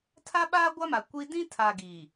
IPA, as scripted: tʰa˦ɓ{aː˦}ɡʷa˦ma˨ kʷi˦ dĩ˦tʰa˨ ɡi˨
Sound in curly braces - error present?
no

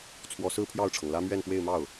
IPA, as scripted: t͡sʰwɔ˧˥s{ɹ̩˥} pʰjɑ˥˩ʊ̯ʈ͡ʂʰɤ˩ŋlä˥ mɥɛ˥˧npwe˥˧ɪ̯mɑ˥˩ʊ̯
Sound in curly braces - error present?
no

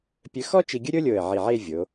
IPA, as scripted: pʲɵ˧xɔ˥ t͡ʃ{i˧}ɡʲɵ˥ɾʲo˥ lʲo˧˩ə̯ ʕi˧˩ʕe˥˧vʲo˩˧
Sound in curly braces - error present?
no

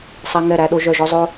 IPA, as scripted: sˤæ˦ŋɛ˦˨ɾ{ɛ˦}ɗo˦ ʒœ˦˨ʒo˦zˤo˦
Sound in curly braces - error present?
yes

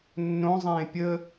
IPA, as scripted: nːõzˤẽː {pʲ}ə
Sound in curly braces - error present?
no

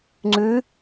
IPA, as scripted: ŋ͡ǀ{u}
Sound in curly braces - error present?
yes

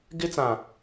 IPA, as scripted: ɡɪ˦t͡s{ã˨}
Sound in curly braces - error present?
no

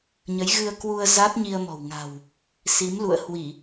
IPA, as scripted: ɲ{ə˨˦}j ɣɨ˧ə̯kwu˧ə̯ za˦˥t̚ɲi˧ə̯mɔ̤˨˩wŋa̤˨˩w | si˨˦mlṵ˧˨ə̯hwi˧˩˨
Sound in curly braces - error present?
no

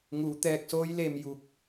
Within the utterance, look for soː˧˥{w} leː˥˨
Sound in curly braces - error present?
yes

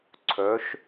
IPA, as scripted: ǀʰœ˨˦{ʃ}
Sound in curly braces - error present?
no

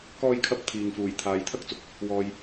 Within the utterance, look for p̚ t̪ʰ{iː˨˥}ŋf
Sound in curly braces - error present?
yes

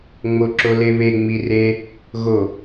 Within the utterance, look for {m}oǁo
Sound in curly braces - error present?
yes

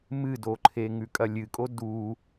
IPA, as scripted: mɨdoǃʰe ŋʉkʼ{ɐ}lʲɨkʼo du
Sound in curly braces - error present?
no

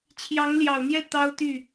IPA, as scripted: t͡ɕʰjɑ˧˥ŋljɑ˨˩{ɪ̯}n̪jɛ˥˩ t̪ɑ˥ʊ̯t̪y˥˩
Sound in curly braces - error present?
yes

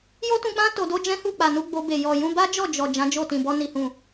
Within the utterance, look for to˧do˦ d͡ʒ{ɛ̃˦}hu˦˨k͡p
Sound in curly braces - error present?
no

